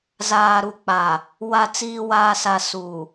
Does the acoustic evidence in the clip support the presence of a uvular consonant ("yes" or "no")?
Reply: no